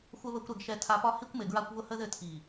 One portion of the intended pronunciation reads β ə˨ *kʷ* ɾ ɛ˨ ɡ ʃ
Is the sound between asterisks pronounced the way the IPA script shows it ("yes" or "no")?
yes